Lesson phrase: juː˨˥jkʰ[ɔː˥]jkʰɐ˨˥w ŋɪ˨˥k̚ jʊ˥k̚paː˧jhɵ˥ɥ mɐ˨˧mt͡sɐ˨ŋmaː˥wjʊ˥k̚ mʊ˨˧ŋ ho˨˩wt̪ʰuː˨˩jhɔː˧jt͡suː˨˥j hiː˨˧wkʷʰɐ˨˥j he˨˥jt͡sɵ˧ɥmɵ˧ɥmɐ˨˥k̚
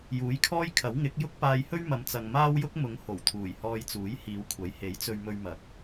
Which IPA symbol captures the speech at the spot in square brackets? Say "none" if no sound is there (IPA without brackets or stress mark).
ɔː˥